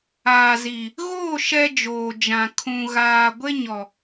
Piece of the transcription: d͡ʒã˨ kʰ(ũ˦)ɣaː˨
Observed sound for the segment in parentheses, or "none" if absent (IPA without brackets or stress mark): ũ˨